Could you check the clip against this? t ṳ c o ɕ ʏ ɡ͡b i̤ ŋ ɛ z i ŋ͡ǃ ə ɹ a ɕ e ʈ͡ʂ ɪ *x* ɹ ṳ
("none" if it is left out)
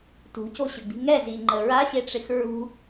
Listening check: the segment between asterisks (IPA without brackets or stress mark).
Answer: x